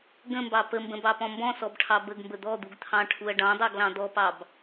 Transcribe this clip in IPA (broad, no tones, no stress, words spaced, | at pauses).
ɡə̃mbɑ pəmbə̃bɑpɔ̃ mbɔ̃sɔbʈʰɑ bəɡmbə d̪ɔd̪uɡt̪ʰɑ̃ʈʰuɐ̯ ɖɑ̃dˤɑɡlɑ̃ d̪ɔpɑb